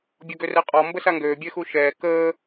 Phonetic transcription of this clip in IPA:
bʲ ɔ ɡ ø r ɛ qʼ ɔ m b ə s a ŋ ɡ øː bʲ ɛ x u ʃ ɛː k əː

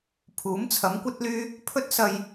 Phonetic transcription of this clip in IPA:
pʰ uː˨˥ m t͡sʰ ɐ˨˥ m kʷ ɐ˥ t̚ l yː˥ | pʰ ɵ˥ t̚ s ɐ˧ j

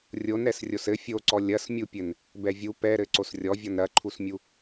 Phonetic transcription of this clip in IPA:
rʲ o n ɾ ɛ s rʲ o s ɘ fʲ o ǀ ɔ lʲ ɐ s mʲ u pʲ ɘ n | b ɛ vʲ u p ɛ ɾ ɘ ǀ o s rʲ ɔ vʲ ɔ n ɾ ɐ ǃʰ u s mʲ u

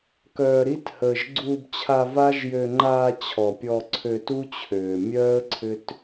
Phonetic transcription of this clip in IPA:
k œː˨ ɾ i˧ t h əː˨ ʒ ɡ͡ǀ uː˧ b t͡ɕʰ a˧ v a˦ ʒ j ø˧ ŋ͡ǃ aː˧ t͡ɕʰ ɔ˨ pʲ ɔ˧ ǀʰ ø˧ t u˦ t͡ɕʰ øː˨ mʲ œː˦ ə̯ ǀʰ ʏ˦ t

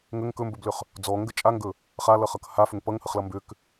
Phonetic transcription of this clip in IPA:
ŋ ə ŋ k ɵ m b ɵ b l ʏ χ | d͡z ɔ ŋ ɡ ə t͡ʃʼ a ŋ ɡ ɵ | χ a l ʌ χ ʌ k h a f ʏ ŋ p ʌ ŋ h ə χ l ʌ m b ʏ k

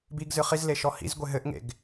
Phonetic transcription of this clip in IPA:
b i ɡ z ɨ χ i z l e ʃ ɔ h ḭ z ɡʷ e ɦ ɘ ʔ ŋ ḛ ɡ

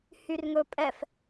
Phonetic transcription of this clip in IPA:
h y r ŋ ɵ pʼ ɛ f

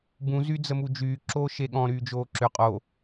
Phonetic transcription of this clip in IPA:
b ũ z y d͡z ə m u d͡ʒ yː ǁ oː ʃ e ɠ ɔ̃ ɾ yː d͡ʒ oː ǁ ʏ qʼ o

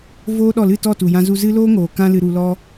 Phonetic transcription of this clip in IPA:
v oː˦ ɗ ɔ˦˨ l ɨ˦˨ t ɔ˦˨ t u˨ j ã˧ z u˧ z ɨ˦ l oː˦ ŋ oː˨ k ã˦ l ɨ˧ ɾ u˧ l ɔ˦

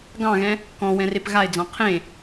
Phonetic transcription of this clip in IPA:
ɡ ɑ̃ ɣ ɛ̃ | k ɔ̃ w ɛ̃ r e p ɣ a ɪ̯ d͡z ɑ̃ qʰ ẽ

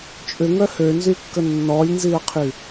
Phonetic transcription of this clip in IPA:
t͡ʃʼ ʏ ŋ œ h ø n z y kː ə nː ɔ lʲ n z i ə̯ qʰ y

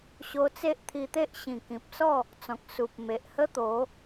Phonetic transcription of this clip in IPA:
ɕ o˧ t͡s e˦ ʔ t̪ʰ i˧ t̪ e˦ ʔ ɕ ĩ˨˩ k ĩ˨ p̚ s ɔ˥˧ | t͡s ɔ̃˨ k̚ s u˨ p̚ m e˨ ʔ h ə˦ t̪ o˨˦

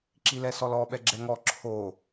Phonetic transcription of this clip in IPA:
ǁ i l ɛ s ɔ l ɔ ɓ ɛ ɡ͡ǁ ɛ ŋ ɔ ǁʰ o

